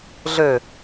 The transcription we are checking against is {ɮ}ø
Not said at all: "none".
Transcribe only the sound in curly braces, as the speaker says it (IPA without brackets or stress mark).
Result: ɮ